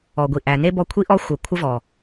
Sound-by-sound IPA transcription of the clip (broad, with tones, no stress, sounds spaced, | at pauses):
ɔ˨ ɡʷ i˨ ʔ æ˨ n e˦ b ɔ˧ kʷʰ i˦ ʔ ɔ˦ xʷ ə˨ kʷʰ ə˦ v ɔ˨